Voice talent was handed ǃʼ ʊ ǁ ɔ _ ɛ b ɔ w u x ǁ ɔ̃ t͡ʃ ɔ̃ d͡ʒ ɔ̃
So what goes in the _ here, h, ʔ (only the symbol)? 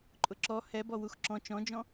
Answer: h